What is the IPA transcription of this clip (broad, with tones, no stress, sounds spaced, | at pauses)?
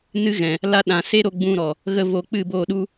n ɨ˧ ɣ ɛ̃˨ | l a˧ ɗ ã˨ s e˦ ɾ o˧ ɡ͡b ũ˧ ɾ ɔ˨ | ɣ ə˧ v o˧ k͡p ɨ˦˨ b oː˦˨ ɗ u˦